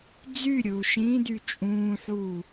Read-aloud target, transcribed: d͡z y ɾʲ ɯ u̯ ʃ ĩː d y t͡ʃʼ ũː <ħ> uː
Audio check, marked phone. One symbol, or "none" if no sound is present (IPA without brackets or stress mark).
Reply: ħ